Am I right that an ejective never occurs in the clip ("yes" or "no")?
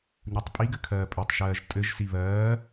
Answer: no